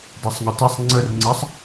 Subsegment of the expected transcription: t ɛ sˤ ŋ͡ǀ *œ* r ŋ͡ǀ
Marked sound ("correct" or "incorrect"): incorrect